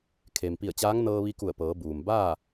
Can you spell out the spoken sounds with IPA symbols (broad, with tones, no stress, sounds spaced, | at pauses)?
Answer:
kʰ e˩ m p i˧˩ ə̯ t͡ɕ aː˧˥ ŋ n ɤː˧ ʋ i˧ k u˧˩ ə̯ p ɤː˩˧ b uː˩ m b aː˥˨